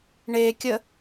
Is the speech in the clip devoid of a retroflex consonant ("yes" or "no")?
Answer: no